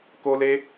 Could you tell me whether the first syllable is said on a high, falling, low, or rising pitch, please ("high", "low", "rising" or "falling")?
high